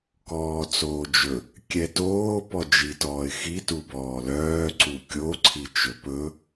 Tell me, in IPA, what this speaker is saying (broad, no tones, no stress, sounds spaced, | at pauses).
k ɔː t͡s oː d͡ʒ ɵ | kʲ ɛ t oː p ɔ d͡ʒ i t ɔː ɪ̯ x i t u b ɔː l œː ǀ u kʲ o ǀʰ i t͡ʃ ɵ p ɵ